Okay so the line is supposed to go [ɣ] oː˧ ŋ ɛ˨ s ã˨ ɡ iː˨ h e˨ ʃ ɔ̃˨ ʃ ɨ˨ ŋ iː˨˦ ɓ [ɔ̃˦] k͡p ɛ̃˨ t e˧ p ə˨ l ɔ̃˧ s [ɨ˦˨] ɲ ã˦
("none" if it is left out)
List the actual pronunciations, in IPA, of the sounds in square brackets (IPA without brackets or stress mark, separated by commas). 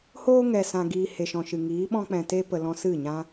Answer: h, ɔ̃˦, ɨ˦˨